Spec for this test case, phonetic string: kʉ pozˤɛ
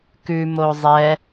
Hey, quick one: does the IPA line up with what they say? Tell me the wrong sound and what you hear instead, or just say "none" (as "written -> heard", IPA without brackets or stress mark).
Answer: p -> m